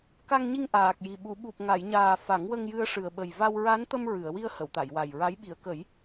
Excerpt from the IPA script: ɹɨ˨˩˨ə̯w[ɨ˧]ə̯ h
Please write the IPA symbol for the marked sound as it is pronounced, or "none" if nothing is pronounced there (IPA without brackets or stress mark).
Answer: i˧